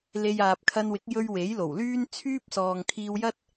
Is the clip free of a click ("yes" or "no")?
yes